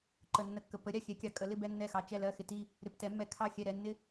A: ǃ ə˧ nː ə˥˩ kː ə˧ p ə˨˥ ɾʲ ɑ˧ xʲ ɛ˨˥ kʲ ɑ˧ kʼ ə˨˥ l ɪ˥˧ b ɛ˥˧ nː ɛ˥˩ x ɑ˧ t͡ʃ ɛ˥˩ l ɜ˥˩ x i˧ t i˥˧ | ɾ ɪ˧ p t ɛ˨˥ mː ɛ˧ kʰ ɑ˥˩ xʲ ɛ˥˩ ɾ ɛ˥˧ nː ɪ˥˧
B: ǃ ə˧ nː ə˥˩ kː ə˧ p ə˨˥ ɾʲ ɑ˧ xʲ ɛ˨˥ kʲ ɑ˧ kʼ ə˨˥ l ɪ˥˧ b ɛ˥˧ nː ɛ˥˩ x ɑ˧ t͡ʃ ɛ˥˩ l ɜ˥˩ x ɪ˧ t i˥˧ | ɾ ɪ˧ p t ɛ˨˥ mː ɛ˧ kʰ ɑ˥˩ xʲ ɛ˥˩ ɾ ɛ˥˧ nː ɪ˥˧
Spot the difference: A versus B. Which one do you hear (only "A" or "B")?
B